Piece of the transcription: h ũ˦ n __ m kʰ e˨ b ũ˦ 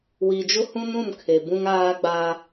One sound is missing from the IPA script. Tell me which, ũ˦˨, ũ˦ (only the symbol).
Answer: ũ˦˨